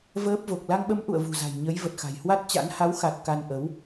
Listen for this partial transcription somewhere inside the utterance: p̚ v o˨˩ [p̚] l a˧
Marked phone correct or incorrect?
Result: incorrect